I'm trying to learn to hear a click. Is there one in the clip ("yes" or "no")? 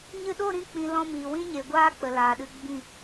no